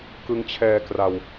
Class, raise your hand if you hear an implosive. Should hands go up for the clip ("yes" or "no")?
no